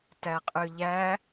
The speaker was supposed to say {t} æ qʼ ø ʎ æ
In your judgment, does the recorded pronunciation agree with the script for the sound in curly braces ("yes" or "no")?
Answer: yes